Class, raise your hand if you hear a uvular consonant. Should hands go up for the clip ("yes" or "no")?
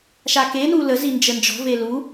no